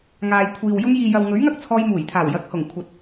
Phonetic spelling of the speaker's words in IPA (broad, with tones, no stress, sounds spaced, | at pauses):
ŋ aː˨ j kʷʰ iː˨ w j ʊ˧ ŋ j iː˨ j ɐ˨ w ŋ ɵ˨˥ ɥ ŋ ɐ˥ k̚ t͡sʰ ɔː˧ j m uː˨˩ j t̪ʰ aː˨˩ w j ɐ˨˥ k̚ h ʊ˨˩ ŋ kʷʰ ɐ˨˥ t̚